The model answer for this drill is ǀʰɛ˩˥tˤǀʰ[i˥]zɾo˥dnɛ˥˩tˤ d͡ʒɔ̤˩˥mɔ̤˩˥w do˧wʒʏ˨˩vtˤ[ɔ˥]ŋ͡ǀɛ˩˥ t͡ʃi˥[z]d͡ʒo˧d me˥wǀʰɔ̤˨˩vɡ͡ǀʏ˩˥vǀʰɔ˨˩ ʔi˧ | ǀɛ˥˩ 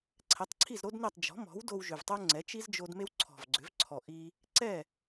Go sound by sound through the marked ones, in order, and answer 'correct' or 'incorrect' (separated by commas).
incorrect, incorrect, correct